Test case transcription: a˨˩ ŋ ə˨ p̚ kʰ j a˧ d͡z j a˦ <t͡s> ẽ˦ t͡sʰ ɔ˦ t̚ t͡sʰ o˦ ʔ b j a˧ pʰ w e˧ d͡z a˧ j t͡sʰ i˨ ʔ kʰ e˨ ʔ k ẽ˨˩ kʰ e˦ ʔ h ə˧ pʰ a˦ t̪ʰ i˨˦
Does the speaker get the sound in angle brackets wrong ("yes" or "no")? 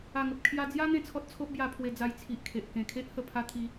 yes